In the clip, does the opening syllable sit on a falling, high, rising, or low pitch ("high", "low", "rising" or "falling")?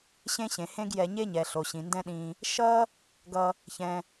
high